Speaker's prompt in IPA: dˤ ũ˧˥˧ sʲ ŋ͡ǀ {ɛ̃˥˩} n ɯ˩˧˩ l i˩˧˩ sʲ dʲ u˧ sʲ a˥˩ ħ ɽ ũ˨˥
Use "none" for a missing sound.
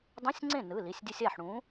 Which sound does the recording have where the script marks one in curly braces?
ẽ˥˩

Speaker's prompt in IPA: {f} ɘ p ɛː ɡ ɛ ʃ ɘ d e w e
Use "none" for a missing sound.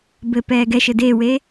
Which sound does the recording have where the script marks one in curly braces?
b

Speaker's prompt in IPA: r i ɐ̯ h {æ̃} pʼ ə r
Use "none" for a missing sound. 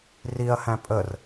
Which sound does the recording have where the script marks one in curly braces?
æ̃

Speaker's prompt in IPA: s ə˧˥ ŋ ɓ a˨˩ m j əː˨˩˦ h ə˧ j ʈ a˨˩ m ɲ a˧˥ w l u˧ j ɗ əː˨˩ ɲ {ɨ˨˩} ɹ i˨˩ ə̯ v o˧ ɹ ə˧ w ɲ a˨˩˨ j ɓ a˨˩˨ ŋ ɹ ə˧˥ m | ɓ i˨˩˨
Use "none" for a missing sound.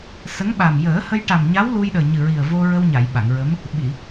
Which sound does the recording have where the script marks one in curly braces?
ɨ˨˩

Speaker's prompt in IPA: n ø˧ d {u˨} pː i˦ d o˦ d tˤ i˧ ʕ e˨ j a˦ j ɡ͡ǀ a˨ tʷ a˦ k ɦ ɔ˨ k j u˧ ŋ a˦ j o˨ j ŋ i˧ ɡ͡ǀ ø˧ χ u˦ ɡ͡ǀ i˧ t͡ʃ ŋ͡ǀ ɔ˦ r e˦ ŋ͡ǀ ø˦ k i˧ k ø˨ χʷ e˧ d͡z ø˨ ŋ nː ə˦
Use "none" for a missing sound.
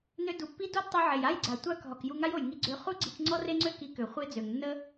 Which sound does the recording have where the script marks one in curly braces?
u˨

